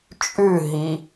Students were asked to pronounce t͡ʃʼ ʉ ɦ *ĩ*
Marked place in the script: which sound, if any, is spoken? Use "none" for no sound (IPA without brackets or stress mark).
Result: i